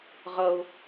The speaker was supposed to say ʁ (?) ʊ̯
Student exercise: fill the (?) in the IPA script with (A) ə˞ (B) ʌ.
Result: B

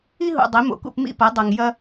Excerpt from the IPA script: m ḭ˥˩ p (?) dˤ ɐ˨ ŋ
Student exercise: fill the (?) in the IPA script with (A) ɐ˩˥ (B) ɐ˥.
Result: A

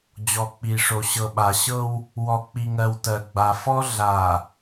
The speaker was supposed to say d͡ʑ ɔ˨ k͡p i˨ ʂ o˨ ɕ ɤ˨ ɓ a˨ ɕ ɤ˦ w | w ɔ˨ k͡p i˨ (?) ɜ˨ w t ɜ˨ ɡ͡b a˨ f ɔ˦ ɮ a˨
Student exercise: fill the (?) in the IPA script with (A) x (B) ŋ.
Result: B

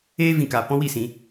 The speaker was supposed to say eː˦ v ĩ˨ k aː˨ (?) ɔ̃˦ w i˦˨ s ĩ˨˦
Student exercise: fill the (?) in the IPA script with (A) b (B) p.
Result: B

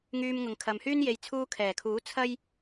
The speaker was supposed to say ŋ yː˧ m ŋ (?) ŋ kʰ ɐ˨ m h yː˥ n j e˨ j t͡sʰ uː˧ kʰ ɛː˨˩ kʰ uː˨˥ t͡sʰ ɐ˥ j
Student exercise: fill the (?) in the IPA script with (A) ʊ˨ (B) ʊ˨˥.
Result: A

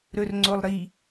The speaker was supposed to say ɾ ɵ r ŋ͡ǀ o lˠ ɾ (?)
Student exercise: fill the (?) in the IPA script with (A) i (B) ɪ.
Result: A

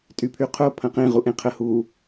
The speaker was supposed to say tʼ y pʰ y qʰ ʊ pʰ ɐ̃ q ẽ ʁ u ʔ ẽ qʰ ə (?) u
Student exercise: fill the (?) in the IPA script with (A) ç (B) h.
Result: B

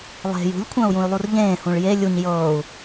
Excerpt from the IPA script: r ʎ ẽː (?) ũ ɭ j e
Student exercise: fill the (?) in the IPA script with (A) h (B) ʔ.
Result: A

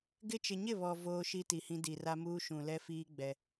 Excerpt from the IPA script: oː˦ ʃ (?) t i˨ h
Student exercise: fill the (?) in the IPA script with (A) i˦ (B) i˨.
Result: A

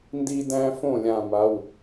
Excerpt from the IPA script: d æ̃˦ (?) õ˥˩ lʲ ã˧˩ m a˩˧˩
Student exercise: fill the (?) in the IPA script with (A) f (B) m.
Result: A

